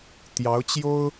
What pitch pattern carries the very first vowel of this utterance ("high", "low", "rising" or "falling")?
rising